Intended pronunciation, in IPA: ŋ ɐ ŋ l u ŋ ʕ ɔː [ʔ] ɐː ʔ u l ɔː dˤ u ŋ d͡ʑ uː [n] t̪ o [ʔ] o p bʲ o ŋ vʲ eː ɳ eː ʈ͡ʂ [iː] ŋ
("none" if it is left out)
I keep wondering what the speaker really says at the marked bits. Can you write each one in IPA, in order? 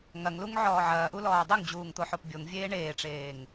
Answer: ʕ, ŋ, ħ, eː

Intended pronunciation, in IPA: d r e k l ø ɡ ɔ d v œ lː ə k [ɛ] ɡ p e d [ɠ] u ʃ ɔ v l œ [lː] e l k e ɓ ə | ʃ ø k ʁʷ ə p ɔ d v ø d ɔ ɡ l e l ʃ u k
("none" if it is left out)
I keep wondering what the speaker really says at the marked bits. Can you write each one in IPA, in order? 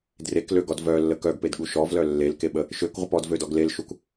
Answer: œ, ɠ, lː

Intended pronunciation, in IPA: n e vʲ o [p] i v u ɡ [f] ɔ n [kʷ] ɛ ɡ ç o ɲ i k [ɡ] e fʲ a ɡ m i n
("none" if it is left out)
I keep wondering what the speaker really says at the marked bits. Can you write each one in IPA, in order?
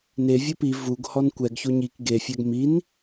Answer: p, h, kʷ, ɡ

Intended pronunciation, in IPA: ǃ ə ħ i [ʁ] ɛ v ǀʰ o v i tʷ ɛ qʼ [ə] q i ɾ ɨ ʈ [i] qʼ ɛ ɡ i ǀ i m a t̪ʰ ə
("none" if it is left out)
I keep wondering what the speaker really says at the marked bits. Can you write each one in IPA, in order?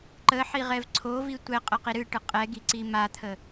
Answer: ʁ, ə, ɨ

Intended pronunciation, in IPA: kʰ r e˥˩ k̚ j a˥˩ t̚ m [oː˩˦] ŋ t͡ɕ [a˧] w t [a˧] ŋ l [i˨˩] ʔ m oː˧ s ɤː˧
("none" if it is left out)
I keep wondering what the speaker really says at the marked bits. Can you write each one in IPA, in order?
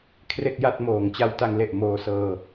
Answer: oː˩˦, a˧, a˧, e˨˩

